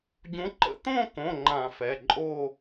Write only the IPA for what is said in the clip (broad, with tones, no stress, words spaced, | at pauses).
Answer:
ɟũ˨˦ǃə̰˧˩˧t̪õ˥˧kõ˩˧˩ ŋ͡ǃã˧˩˧fɛ˩˧˩ǃʼo˥˧